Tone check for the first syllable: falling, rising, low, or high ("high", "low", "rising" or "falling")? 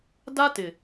high